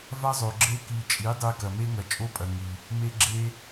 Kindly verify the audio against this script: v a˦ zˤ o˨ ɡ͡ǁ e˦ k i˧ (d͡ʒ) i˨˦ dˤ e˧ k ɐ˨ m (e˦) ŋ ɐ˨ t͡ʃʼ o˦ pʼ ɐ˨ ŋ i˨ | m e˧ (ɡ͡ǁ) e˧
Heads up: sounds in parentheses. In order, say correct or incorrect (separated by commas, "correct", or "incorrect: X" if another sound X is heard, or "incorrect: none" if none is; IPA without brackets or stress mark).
incorrect: t͡ʃʼ, correct, correct